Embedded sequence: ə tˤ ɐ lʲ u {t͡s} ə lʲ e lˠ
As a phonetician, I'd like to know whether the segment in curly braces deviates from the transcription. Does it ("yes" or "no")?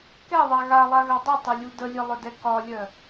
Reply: yes